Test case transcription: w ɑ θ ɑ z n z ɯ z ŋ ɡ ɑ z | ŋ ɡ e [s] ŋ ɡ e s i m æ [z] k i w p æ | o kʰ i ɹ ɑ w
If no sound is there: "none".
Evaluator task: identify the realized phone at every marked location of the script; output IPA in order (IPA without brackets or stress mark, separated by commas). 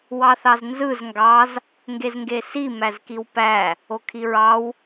z, z